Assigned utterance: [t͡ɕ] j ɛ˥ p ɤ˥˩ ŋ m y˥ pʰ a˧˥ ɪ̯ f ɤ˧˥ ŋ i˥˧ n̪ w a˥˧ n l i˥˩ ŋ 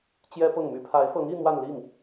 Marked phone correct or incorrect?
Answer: correct